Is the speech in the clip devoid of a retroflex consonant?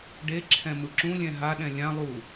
no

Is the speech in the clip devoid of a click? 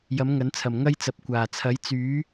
yes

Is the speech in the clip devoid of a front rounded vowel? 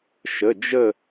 yes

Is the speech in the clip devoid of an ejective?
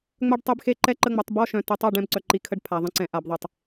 yes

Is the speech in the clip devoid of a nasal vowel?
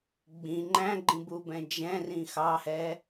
no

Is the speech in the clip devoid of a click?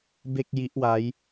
yes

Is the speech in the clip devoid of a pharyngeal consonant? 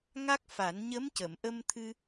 yes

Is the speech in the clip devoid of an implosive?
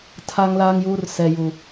yes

